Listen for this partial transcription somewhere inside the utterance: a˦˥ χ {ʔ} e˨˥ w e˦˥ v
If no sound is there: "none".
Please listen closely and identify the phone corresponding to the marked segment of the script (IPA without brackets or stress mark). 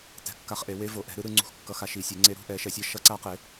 ʔ